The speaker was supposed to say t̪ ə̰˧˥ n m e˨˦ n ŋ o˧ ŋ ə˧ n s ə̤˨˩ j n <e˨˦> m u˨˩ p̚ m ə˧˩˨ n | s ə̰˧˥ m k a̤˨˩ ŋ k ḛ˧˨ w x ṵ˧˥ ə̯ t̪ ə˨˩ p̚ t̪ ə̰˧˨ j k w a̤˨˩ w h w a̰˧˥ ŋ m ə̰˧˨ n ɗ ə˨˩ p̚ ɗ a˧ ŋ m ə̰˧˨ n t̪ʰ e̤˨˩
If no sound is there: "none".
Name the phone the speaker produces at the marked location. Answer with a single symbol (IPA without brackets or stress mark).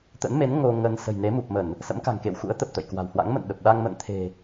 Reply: e˨˦